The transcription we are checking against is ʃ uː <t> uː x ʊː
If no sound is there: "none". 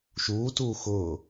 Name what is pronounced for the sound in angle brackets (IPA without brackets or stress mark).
t